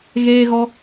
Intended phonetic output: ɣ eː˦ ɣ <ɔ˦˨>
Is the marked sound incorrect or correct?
incorrect